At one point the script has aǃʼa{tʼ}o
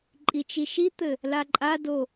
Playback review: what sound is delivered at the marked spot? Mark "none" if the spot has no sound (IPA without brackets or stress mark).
d